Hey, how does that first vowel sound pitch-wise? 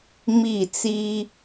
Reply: falling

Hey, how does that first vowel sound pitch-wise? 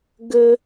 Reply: high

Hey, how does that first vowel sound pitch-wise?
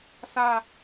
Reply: falling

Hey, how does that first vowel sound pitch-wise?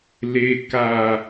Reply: low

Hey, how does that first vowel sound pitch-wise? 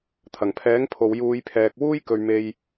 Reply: low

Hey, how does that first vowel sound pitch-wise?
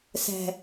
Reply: high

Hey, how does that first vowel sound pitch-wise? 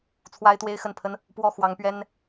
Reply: high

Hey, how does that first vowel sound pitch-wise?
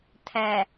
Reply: low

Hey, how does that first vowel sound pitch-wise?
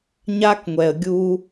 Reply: high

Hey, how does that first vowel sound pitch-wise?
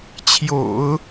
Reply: low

